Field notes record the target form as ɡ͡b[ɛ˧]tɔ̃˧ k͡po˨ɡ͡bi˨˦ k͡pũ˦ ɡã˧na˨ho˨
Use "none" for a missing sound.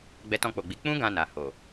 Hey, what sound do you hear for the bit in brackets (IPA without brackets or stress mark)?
ɛ˧